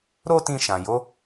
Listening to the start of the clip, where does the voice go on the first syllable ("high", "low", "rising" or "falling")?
high